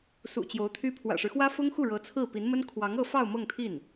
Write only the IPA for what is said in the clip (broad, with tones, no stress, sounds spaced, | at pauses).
s ṵ˨˩ t͡ɕ j o˧˥ ʊ̯ t̪ʰ y˥ pʰ w ä̰˨˩ ʂ ɻ̩˦ x w ä˥ f ʊ˥ ŋ x u˥˩ ɻ ɤ˧˥ t͡sʰ ɹ̩˥˩ p i˧˥ n m ə˥ n kʰ w ɑ˧˥ ŋ ɤ˥˧ f ɑ˥˧ ʊ̯ m ɤ˥˧ ŋ t̪ʰ i˥˩ n